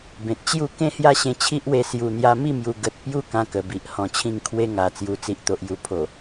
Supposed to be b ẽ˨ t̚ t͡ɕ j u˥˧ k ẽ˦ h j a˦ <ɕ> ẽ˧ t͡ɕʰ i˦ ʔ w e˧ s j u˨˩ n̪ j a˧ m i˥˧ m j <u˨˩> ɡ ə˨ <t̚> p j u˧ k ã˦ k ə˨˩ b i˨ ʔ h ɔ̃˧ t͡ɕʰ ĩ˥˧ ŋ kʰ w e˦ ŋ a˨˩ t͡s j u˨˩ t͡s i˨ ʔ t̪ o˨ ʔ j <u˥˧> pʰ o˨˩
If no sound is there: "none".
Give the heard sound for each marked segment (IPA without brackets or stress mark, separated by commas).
ɕ, u˨˩, t̚, u˨˩